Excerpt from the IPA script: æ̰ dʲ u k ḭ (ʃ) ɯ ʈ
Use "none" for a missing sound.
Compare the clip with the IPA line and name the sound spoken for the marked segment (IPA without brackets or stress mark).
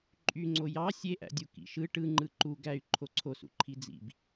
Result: ʃ